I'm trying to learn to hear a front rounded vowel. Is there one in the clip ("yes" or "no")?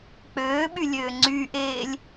yes